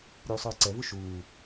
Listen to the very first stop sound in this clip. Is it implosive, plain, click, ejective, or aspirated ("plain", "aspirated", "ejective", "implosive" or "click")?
click